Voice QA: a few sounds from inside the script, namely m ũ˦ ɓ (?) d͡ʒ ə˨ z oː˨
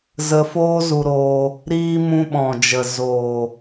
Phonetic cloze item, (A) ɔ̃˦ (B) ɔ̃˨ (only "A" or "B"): B